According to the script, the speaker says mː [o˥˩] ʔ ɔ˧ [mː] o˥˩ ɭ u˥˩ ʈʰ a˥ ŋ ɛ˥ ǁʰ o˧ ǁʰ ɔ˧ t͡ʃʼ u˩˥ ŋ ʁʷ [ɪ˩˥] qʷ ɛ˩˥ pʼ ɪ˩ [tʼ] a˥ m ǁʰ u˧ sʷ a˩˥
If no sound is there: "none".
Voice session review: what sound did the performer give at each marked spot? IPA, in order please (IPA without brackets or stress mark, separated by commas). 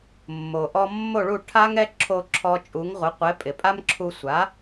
o˩, mː, ɪ˩˥, pʼ